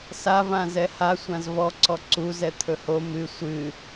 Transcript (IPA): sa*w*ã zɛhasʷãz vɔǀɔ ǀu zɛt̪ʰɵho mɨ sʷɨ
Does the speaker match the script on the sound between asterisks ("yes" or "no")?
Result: no